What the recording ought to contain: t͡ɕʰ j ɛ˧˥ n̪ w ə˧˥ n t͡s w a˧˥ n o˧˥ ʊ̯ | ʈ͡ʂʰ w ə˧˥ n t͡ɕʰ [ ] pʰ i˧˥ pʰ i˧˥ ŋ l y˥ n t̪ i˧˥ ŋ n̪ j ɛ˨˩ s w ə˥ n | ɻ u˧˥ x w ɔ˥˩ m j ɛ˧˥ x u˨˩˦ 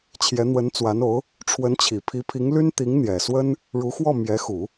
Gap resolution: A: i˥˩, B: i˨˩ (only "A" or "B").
B